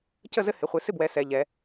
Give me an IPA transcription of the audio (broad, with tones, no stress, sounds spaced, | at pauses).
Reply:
c ə˥˨ z ɘ˦ h ɪ˩˧ χʷ ɪ˩˧ s ɪ˥˨ b w ɛ˩˧ s ɛ˩˧ ʎ ɛ˩˧